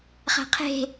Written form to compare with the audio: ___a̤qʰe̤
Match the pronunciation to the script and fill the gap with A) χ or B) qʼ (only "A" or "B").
A